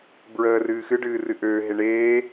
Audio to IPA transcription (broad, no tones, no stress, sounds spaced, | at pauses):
b ɹ əː r ɨː x ɨ ɖ ɨː r ɨ ʔ øː ɦ e ɳ eː